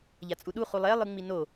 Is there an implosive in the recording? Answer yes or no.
yes